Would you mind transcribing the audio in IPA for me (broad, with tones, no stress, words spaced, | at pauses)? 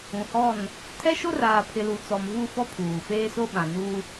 ũ˨hɔ˦˨n | tʰɛ˦ʃo˦raː˨pʰɪ˨ lu˨t͡sɔ˨mvu˦˨ fɔ˦pʰuː˨ feː˦so˦ɓã˨ nu˦